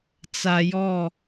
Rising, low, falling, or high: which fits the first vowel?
low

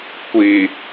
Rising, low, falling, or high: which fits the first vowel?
low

